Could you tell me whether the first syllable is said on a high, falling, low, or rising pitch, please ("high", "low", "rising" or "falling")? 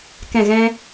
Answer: falling